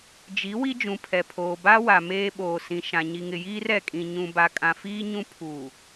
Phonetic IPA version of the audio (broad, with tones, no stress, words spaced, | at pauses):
d͡ʒi˨˦ wi˦d͡ʒũ˨pʰɛ˨pʰoː˨ ba˦wa˨ meː˦ɓoː˨ sĩ˨ ʃã˨ ɲi˨ŋɪ˨jiː˦r ɛ˨kʼĩ˨ ɲũ˨ba˨ kʼã˨fiː˦ ɲũ˦ pʰuː˨